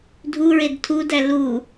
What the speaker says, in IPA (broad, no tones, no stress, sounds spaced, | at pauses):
dʱ u ɹ e d tʰ u d æ l u